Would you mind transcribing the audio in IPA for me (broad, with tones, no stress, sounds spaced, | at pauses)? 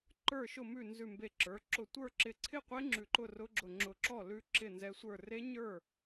ǃ ə˞˥˩ ʃ ʊ˥˩ m ʉ˥˩ n z ʉ˧˩ m b e˧˩ ǁ ə˞˩˧˩ ǁ ʊ˧˩ tʷ ə˞˥˩ ǁ ɪ˧˩ ǀʰ ɪ˥˩ qʷ e˧˥ ŋ͡ǁ ʉ˧˩ ǃ ʊ˥˩ r ʊ˧˥ ɡ͡ǁ ʊ˧˩ ŋ͡ǁ ʊ˧˩ ǁ ɔ˥˩ l ʉ˧˥ ǁ ɪ˥˩ n z ɛ˧˥ sʷ ə˞˥˩ r e˧˥ ɲ ə˞˥˩